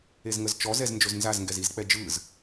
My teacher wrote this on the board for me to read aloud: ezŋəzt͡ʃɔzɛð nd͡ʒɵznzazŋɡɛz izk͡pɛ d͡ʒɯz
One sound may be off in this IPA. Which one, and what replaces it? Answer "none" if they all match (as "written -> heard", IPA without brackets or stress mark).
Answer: ð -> z